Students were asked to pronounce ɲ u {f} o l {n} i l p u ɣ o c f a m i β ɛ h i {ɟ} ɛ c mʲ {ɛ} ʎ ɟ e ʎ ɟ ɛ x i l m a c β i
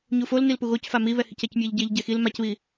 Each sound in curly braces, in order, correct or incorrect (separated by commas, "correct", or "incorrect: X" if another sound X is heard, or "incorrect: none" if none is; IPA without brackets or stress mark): correct, correct, incorrect: c, correct